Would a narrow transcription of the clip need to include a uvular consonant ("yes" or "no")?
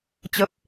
no